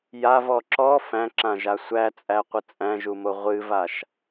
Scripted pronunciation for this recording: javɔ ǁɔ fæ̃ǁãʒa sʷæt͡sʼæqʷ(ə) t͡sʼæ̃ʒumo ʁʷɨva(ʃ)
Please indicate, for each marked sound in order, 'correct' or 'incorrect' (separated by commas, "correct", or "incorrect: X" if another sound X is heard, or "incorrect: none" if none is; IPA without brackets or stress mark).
correct, correct